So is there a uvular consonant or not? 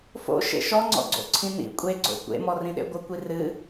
no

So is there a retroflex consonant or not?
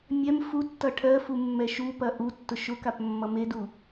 yes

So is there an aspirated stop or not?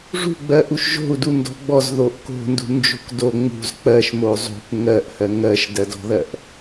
no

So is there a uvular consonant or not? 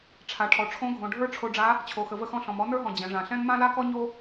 no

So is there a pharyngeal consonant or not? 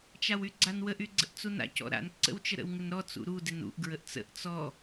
no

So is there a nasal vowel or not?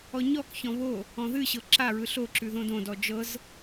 yes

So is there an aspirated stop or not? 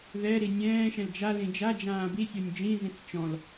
no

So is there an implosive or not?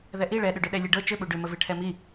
yes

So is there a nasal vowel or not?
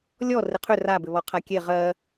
no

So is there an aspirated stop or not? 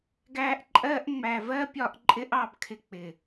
yes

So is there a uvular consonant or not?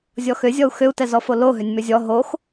no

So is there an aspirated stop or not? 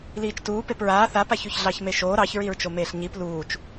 no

